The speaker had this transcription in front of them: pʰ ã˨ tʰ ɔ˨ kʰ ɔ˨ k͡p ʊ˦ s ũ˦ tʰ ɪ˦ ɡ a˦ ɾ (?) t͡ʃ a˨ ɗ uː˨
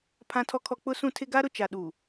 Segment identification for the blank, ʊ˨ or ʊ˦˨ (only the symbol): ʊ˨